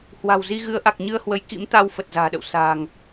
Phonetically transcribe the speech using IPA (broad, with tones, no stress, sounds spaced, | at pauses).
h w a̤˨˩ w z i˧ ɣ ɨ˨˦ ə̯ ʔ a˨˩ k̚ ɲ ɨ˧ ə̯ h w ə˨˦ j k ḭ˧˥ m t̪ a˧ w f ə˨˩ t̚ z a̤ː˨˩ ɗ ə̰˧˨ w s a̤ː˨˩ ŋ